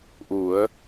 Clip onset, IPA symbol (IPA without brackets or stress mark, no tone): ʔ